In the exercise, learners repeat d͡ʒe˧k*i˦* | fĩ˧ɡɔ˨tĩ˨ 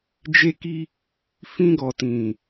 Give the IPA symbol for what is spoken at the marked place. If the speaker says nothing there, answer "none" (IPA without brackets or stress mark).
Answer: i˧